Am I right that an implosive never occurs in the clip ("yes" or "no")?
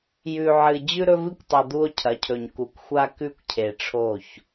yes